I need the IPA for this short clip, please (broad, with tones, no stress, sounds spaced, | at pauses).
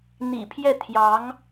n̪ ḭ˨˩ pʰ j ɛ˥˩ t̪ʰ j ɑ˧˥ ŋ